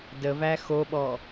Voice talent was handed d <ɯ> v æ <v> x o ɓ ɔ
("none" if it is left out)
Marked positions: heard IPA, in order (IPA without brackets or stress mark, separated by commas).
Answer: ə, none